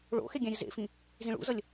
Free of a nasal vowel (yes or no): no